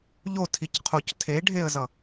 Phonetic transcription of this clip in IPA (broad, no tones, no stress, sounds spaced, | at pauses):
ʎ o tʰ i c qʰ o c tʰ e ɖʱ e ə̯ z ʌ